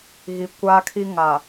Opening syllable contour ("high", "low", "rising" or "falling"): low